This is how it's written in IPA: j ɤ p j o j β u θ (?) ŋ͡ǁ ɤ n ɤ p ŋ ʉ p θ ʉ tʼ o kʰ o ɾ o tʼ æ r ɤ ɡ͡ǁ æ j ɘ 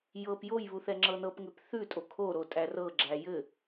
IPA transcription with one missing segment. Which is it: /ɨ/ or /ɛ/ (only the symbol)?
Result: ɛ